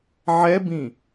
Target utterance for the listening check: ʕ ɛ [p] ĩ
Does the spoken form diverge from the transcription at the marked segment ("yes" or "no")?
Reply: yes